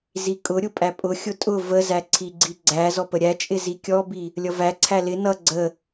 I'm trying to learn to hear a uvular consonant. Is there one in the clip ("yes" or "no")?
no